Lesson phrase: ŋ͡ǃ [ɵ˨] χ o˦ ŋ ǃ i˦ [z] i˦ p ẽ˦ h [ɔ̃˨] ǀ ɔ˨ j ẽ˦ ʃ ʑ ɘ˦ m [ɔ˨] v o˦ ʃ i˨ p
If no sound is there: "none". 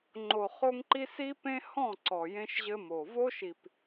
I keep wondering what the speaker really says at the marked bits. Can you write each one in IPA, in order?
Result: o˨, s, ɔ̃˦˨, o˨

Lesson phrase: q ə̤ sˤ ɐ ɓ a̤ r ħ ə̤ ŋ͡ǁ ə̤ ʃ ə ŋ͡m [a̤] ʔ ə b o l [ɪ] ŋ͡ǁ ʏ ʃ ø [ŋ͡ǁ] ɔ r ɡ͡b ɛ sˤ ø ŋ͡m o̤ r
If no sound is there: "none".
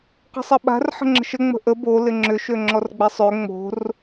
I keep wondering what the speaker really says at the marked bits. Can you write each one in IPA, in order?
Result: ə̤, ɪ, ŋ͡ǁ

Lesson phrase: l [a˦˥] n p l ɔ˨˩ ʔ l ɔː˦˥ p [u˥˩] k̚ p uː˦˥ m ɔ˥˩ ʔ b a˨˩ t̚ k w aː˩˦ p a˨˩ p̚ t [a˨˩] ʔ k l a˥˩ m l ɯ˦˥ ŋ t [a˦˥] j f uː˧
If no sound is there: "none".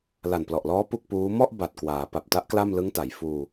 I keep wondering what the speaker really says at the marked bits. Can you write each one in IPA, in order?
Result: a˨˩, u˥˩, a˦˥, a˩˦

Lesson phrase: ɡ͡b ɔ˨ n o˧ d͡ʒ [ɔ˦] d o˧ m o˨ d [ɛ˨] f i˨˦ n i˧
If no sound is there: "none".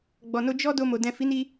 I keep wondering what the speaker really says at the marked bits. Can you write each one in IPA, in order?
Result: ɔ˦, ɛ̃˨

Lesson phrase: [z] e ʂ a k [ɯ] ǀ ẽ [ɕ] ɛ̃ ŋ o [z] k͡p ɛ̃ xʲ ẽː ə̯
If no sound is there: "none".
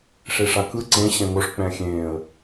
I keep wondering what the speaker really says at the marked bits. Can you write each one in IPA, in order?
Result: ʂ, ɯ, ɕ, ʂ

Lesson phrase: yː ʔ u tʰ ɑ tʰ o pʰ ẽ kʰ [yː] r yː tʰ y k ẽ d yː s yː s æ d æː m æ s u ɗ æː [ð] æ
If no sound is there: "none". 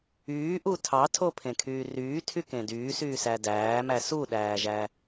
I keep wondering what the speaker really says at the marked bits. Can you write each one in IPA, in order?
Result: yː, ʒ

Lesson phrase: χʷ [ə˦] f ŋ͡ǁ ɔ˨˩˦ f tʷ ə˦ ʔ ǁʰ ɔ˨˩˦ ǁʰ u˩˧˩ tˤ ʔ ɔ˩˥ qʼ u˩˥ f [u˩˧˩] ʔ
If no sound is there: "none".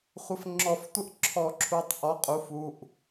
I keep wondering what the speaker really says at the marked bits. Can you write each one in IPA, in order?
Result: ə˩˧˩, u˩˧˩

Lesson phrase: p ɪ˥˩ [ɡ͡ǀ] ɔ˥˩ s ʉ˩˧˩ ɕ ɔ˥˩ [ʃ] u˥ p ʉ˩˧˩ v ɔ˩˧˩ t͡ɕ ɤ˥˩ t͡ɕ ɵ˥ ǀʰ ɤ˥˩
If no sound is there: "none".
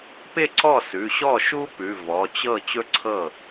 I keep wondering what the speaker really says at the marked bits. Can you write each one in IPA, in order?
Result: ǀ, ʃ

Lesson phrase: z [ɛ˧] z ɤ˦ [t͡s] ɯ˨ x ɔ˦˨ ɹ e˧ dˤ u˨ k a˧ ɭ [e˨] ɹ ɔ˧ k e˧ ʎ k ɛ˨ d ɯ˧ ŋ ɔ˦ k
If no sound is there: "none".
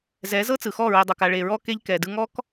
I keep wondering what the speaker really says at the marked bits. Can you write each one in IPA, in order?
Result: ɛ˨˦, t͡s, e˨

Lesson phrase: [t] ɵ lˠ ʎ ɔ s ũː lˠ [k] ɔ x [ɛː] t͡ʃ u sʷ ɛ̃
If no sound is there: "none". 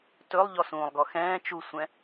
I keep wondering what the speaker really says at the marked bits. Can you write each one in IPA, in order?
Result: t, ɡ, ɛ̃ː

